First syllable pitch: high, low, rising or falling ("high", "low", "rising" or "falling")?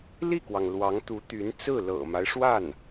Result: falling